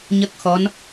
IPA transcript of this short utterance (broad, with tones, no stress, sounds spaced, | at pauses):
ɲ ə˦˥ k̚ x ɔ˧˥ n